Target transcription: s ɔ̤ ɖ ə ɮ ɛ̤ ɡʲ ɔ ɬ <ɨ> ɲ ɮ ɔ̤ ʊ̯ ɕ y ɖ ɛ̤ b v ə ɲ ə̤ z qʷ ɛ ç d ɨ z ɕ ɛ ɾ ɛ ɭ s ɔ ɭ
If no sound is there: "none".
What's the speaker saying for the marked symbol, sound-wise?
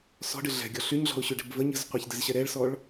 y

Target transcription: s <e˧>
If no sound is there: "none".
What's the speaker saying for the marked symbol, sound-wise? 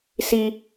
i˧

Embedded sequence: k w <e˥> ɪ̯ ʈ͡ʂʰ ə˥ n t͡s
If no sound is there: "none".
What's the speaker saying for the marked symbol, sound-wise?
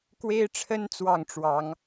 e˥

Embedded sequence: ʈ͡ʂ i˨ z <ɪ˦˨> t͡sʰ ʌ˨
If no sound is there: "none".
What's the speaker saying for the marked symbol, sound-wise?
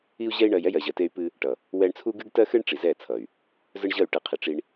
ɛ˦˨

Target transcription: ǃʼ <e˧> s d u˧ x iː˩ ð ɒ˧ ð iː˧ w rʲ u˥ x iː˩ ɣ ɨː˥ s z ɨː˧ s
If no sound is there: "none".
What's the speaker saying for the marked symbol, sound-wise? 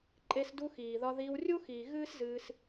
e˧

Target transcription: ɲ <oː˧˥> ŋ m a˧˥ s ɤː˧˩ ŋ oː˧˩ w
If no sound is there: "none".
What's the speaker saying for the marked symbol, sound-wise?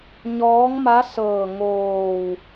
ɔː˧˥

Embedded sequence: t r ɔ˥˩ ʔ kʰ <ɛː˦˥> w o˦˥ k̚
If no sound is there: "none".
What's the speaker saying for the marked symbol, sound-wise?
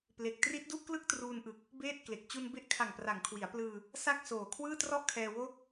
ɛː˧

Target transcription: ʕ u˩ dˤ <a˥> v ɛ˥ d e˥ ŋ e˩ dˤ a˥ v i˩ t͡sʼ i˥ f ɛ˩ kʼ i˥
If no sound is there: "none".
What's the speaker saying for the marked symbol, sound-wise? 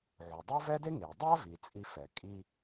a˥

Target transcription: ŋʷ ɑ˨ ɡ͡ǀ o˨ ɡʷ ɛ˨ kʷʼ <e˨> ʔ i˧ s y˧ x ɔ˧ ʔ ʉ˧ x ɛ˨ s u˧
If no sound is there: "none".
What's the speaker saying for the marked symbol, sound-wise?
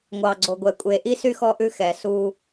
e˨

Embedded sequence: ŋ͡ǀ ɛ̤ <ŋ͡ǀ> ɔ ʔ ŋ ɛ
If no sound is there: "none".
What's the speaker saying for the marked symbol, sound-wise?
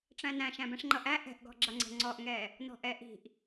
ŋ͡ǀ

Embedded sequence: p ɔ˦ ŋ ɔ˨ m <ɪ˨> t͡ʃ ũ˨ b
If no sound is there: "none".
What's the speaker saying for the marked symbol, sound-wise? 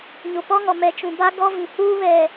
ɛ˨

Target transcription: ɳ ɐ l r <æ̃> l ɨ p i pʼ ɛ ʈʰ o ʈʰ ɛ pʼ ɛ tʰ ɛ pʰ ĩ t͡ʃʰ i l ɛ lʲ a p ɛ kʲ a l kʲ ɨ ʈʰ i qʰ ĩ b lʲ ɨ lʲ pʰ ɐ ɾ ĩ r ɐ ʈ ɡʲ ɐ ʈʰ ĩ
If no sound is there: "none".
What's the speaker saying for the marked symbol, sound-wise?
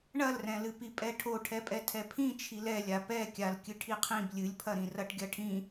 ɛ̃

